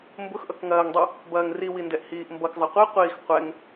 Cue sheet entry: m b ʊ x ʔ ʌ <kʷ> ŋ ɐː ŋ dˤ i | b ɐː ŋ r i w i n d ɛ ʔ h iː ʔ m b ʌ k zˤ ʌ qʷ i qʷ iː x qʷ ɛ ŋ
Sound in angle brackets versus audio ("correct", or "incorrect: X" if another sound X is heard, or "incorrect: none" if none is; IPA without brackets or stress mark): incorrect: k